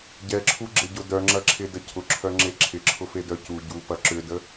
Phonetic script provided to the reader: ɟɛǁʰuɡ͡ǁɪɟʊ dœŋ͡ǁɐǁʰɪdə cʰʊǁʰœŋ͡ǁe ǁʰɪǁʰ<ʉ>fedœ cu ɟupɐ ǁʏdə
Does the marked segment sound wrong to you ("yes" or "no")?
yes